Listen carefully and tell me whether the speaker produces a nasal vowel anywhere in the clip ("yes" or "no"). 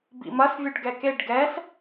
no